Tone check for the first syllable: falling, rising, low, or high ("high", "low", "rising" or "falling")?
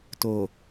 low